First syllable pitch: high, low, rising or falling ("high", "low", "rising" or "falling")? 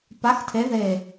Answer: rising